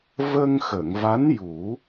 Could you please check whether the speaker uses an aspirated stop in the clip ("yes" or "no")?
no